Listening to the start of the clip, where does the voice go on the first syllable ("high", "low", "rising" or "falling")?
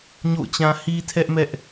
falling